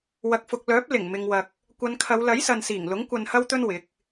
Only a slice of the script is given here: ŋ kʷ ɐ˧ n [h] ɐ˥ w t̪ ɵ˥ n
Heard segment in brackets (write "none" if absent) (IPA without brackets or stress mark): h